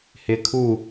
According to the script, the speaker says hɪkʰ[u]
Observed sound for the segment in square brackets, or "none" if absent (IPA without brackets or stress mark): u